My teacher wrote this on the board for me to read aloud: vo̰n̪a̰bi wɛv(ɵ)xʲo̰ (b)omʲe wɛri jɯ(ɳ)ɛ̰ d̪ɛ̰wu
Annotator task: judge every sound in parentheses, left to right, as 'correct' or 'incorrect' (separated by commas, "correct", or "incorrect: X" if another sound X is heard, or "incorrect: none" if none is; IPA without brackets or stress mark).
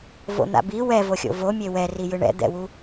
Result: incorrect: o, incorrect: v, correct